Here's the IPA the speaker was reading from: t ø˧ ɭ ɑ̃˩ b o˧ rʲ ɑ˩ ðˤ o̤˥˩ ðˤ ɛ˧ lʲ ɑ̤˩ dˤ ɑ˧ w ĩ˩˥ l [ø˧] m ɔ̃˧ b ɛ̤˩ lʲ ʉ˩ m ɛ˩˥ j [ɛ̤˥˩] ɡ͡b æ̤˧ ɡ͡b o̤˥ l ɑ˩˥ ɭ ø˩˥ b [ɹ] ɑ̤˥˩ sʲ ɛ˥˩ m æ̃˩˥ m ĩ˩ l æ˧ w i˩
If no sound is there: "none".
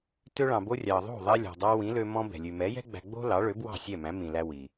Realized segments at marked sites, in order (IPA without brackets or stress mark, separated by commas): ø˧, ɛ̤˥, w